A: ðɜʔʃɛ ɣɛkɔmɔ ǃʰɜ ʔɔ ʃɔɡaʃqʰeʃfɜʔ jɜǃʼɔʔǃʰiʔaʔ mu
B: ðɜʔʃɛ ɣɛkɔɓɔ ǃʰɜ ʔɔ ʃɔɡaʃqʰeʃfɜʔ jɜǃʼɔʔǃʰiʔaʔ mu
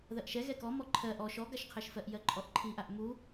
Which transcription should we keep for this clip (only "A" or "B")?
A